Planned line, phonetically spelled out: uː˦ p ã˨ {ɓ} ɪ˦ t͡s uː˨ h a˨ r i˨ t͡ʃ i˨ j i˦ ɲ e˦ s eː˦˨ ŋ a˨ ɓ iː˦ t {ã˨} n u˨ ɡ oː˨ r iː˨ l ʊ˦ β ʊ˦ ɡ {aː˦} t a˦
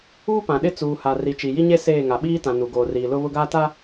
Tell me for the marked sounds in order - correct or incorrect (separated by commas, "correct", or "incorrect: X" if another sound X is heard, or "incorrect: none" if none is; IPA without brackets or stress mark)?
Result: incorrect: ɗ, correct, correct